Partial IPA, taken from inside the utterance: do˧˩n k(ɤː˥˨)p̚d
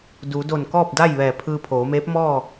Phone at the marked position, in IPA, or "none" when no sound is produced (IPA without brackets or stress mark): ɔː˥˨